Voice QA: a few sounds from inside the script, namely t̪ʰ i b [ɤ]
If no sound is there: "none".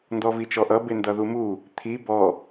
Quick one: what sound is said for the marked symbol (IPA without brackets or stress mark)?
ɔ